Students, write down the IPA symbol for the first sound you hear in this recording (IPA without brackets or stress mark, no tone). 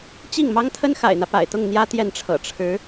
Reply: t͡ɕ